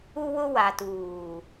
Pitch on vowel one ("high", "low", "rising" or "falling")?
high